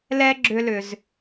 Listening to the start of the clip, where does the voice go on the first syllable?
high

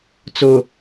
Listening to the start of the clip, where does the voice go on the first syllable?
low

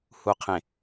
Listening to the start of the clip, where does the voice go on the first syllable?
low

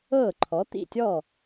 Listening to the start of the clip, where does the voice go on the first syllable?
falling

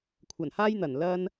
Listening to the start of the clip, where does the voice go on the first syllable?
low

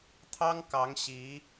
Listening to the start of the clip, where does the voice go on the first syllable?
high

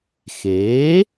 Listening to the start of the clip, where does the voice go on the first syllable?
rising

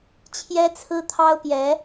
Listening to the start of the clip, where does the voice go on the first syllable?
high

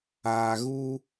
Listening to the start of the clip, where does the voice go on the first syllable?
low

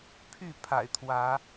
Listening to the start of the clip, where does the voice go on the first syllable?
falling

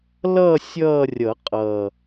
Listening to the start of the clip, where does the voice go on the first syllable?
falling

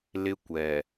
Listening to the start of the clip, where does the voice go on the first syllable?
high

